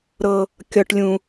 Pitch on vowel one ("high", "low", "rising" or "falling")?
high